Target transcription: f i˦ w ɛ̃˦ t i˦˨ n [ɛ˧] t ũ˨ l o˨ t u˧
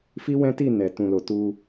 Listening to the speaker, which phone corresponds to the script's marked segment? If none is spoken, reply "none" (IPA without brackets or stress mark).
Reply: ɛ˨